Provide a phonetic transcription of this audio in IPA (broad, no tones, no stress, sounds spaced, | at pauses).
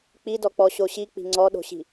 k͡p i d ɔ k͡p ɔ ɕ o ɕ i k͡p i̤ ŋ͡ǀ ɔ ɗ o̤ ɕ i̤